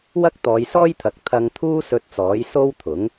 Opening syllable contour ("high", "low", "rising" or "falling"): high